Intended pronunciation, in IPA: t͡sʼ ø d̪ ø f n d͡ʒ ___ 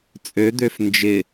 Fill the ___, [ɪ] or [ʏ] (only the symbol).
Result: ɪ